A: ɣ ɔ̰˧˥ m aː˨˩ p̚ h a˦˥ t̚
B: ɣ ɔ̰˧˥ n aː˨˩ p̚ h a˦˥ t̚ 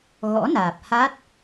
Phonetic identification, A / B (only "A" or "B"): B